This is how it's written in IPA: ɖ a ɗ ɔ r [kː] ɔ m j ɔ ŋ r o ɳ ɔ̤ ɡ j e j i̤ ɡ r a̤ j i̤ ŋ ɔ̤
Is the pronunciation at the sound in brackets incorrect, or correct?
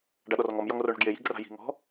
incorrect: ŋ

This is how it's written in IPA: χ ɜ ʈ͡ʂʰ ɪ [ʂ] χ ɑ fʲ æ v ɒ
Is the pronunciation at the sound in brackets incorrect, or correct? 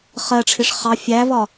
correct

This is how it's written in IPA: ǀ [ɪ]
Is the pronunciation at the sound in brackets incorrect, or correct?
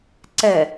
incorrect: ɛ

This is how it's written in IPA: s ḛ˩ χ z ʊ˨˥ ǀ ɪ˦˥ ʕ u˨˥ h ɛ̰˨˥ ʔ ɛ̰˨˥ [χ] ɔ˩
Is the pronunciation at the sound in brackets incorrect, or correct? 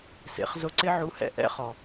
correct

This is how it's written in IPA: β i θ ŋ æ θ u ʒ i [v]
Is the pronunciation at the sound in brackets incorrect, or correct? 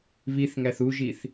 incorrect: θ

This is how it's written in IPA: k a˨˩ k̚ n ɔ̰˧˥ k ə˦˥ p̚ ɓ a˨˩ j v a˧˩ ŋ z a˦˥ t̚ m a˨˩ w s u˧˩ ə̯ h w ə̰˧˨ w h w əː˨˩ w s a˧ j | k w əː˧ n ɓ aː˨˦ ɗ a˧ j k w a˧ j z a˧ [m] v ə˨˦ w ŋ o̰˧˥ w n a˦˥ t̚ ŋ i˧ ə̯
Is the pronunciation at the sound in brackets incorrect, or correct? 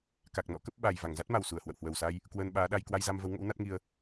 correct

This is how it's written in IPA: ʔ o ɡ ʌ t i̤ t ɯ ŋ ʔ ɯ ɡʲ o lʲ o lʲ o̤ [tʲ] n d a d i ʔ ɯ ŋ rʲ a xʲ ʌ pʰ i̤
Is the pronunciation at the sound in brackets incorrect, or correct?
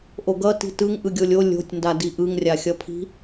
correct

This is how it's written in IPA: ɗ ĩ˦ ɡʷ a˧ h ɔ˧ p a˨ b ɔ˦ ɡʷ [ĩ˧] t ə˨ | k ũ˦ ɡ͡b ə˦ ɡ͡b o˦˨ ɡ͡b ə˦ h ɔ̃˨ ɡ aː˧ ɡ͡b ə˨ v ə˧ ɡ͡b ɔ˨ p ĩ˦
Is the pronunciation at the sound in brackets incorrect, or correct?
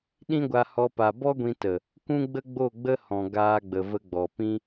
correct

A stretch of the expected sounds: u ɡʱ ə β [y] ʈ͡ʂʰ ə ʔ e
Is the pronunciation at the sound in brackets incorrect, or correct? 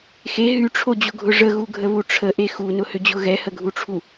incorrect: u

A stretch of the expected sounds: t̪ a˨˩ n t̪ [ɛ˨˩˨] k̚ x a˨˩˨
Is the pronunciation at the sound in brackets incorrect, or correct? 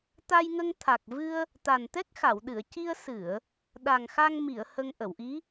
incorrect: ɛ˦˥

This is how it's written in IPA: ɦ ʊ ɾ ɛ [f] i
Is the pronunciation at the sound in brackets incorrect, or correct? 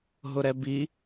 incorrect: b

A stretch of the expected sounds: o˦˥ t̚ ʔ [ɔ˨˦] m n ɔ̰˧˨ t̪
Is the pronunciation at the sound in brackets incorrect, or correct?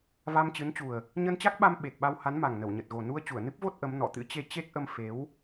incorrect: ə˨˦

